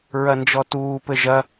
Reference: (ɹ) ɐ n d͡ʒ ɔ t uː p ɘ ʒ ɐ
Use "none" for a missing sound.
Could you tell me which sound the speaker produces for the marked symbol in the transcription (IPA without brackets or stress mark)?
ɹ